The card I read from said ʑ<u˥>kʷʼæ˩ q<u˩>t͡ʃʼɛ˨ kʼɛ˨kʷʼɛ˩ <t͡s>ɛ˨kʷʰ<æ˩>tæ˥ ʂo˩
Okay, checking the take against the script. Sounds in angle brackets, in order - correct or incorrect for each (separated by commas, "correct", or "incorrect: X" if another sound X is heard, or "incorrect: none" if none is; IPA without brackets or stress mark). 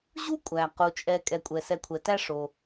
correct, correct, incorrect: s, incorrect: ɛ˩